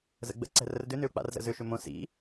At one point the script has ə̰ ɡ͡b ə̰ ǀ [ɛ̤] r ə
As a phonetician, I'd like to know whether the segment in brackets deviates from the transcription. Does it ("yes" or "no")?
no